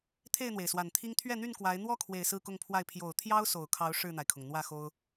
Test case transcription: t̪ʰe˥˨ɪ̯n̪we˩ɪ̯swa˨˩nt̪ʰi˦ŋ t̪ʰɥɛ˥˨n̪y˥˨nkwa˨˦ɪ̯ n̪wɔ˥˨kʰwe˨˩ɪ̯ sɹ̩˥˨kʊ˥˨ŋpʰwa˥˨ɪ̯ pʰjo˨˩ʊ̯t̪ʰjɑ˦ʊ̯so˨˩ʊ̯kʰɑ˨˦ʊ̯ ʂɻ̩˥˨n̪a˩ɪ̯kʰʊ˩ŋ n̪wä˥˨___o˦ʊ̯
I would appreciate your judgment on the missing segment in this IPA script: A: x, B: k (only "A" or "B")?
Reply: A